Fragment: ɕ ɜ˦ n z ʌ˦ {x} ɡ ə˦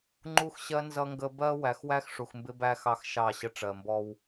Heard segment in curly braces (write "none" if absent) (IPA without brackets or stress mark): ŋ